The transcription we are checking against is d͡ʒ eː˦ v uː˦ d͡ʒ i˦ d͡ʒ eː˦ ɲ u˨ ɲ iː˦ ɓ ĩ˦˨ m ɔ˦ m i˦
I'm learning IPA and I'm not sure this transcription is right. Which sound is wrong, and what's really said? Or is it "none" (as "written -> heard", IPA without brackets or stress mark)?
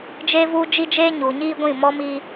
ɓ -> ɡʷ